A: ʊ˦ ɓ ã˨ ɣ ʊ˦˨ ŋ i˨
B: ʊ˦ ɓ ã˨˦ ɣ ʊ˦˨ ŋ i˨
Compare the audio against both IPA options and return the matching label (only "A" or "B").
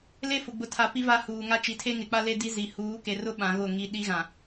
B